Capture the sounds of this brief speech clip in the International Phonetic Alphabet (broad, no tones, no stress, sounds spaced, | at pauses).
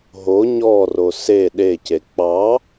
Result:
ɦ o ɲ ɔ r o s e ɗ e c e k͡p ɑ